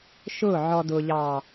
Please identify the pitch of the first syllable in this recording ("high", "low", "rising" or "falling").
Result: falling